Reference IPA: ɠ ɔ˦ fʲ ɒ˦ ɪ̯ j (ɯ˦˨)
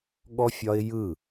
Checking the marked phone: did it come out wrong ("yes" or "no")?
no